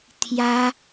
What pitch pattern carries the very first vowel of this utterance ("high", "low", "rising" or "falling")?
high